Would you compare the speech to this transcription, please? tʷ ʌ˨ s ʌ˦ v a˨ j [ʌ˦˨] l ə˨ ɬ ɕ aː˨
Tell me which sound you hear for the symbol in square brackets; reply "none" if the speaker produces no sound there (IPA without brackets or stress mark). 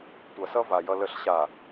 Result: ʌ˨